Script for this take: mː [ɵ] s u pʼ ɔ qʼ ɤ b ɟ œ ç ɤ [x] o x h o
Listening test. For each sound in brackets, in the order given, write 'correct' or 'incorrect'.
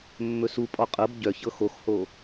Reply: correct, correct

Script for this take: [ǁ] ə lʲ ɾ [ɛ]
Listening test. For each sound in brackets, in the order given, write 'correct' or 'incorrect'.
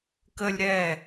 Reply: incorrect: k, correct

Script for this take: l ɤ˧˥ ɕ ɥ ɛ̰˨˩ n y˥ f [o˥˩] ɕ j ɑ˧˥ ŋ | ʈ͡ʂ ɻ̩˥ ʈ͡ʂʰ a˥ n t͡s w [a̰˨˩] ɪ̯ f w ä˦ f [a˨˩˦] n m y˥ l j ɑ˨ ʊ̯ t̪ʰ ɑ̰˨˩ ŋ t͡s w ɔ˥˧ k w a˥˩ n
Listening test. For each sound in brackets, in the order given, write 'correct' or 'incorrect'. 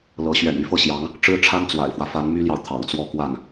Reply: incorrect: ɤ˥˩, correct, incorrect: a˧˥

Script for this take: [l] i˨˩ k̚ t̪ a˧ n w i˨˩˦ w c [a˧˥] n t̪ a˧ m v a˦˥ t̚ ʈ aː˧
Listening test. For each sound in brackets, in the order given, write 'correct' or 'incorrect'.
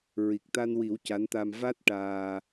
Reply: incorrect: ɹ, correct

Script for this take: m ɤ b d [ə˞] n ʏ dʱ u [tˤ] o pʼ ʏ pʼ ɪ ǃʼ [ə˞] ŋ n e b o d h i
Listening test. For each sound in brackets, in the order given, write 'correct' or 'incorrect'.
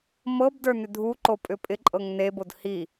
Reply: correct, incorrect: ǃ, incorrect: ɤ

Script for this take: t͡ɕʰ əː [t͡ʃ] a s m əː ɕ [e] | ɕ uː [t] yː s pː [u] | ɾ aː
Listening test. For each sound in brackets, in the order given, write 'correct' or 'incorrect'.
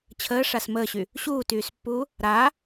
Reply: incorrect: ʂ, incorrect: y, correct, incorrect: uː

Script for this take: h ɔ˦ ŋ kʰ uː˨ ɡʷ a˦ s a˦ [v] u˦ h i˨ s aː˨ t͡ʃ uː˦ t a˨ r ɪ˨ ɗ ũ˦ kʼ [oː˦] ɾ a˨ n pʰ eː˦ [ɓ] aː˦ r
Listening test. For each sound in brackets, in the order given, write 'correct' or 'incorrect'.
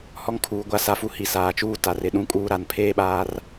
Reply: incorrect: f, incorrect: uː˦, correct

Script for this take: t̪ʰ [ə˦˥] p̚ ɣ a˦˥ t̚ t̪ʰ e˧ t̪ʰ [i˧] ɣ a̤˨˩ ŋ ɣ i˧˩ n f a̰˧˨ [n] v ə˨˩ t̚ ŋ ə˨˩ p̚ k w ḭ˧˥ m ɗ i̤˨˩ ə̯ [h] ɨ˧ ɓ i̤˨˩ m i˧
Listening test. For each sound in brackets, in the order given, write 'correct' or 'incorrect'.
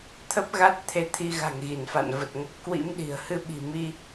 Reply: correct, correct, correct, correct

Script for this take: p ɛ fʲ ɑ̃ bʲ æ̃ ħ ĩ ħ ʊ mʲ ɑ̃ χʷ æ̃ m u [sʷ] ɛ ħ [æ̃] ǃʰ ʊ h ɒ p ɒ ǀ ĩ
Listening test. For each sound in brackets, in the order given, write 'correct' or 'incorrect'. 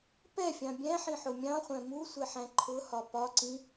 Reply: correct, correct

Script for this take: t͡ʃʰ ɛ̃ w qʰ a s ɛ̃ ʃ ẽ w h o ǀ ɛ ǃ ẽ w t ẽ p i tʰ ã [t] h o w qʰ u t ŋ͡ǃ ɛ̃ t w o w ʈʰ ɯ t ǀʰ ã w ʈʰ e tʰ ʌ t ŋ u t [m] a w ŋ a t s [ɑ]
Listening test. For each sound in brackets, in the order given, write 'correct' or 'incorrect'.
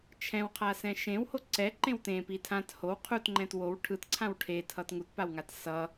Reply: correct, incorrect: p, incorrect: ʌ

